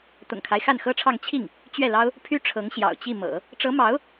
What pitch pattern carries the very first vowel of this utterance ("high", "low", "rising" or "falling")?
low